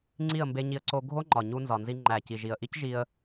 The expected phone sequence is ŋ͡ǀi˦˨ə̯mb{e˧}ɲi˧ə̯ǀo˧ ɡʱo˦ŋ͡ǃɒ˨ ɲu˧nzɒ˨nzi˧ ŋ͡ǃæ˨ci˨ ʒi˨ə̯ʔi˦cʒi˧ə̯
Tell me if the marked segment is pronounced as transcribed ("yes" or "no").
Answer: yes